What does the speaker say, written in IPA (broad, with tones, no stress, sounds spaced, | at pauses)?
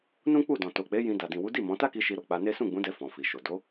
n ũ˦ k͡p u˦˨ d ɔ̃˨ t o˨ k͡p e˨˦ j ĩ˧ d a˨ d ĩ˨ w u˨˦ d i˦˨ m ɔ̃˨˦ t a˦ k i˧ ʃ i˧ ɾ o˨ k͡p a˧ n e˦ s ũ˦˨ ɡ͡b ũ˨˦ d ɛ˧ f ɔ̃˨ f i˨ ʃ o˨ d o˨˦